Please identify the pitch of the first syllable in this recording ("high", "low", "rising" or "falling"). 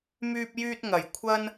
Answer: high